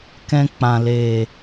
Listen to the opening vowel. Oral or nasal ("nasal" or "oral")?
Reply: nasal